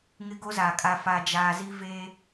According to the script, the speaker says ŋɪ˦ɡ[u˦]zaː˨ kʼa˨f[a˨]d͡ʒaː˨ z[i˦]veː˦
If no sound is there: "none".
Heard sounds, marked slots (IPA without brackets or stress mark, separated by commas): o˦, a˨, i˦